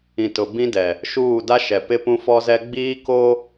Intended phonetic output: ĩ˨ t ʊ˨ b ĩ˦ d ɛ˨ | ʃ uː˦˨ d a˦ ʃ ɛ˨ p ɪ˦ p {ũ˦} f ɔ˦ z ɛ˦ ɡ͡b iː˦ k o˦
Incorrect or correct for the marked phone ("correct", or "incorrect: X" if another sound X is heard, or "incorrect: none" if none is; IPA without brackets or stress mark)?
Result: correct